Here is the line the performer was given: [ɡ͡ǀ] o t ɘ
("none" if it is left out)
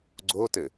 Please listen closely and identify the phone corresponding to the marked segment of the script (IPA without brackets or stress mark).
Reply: ɡ͡ǀ